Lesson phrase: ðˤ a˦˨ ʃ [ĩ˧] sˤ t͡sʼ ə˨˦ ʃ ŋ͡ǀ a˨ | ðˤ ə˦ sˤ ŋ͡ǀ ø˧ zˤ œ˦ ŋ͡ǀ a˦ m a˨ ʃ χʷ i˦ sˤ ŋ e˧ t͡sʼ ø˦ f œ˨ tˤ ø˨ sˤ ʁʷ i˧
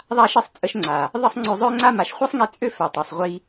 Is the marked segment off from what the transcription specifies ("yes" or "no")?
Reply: yes